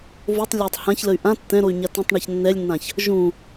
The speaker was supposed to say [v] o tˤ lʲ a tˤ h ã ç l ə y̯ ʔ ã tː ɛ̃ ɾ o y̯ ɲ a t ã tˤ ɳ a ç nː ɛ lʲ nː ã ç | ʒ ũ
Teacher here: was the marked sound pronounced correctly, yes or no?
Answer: yes